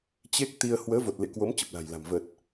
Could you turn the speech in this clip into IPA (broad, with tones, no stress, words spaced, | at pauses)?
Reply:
t͡ɕe˦˥k̚t̪i˧ə̯ hwəː˨˦vo˨˩t̚lḛ˧˨ kwo˨˦m t͡ɕə˨˩p̚la̤˨˩jla̤˨˩m və˨˩t̚